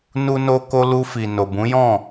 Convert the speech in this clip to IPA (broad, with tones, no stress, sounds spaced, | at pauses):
n u˧ n o˧ k o˧ l u˧ f i˨ n o˨ b ũ˨˦ j ɔ̃˦˨